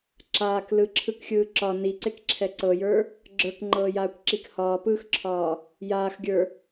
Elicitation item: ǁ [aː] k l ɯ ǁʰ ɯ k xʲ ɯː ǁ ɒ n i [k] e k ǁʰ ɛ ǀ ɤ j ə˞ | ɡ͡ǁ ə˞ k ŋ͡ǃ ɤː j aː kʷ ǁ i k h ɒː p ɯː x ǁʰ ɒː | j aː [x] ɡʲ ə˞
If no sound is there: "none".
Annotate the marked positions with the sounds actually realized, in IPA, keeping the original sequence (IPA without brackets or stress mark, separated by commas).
aː, ǀ, x